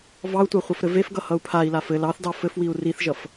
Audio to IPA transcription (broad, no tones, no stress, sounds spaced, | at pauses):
v ɑ u̯ tʷ ɑ χʷ ʌ f ɾ ɘ v e f ɡ ʌ h ʌ u̯ pʰ a i̯ l a f ɘ l ɑ θ d ɑ f ɘ f w i u̯ r i θ ʒ ʌ f